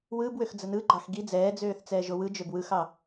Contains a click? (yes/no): yes